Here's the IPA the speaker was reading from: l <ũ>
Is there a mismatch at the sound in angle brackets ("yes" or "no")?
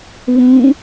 no